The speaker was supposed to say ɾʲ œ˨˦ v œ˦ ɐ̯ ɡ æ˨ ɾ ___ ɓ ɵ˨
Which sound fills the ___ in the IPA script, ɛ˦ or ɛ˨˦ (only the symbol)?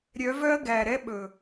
ɛ˦